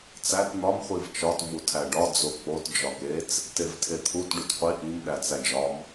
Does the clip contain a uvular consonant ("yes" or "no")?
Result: yes